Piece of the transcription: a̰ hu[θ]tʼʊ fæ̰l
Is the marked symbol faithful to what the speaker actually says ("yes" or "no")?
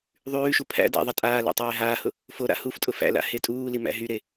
no